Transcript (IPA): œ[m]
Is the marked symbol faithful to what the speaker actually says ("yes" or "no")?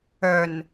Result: no